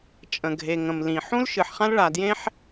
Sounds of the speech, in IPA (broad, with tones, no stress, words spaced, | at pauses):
t͡ʃʼə̃˩ɡʱe˩ ŋə̃˩mlĩ˩ ħũ˥lʃɨ˩ħ χã˥lɭa˩djẽ˥ħ